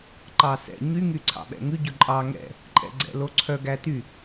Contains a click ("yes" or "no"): yes